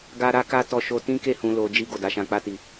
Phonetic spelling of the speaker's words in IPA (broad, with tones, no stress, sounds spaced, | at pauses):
ɡ a˦ ɾ a˦ k a˦ t ɔ˧ ʃ o˧ t ĩ˦ k e˦˨ h ũ˧ l o˧ d͡ʒ i˧ ɡ o˨ d a˨˦ ʃ ã˧ k͡p a˦ t i˧